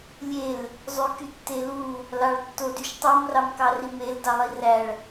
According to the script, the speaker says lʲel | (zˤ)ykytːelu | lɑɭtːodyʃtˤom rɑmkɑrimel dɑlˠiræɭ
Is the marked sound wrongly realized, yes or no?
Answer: no